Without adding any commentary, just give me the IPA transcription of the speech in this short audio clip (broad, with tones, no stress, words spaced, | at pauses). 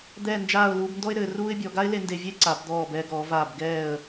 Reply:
d̪ɛː˥˧nd͡ʒaː˥˧ʊ̯ luː˧bndɔ˥ɪ̯ɾɘː˩˧ruː˥ɪ̯ bʲɔ˩˧ ɡa˥ɪ̯le˧ nde˧vʲe˥ǀa˩˧b d̪ɔː˧˩bɛː˧ɡɔː˩˧vaː˧˩b ɡɛː˧˩ə̯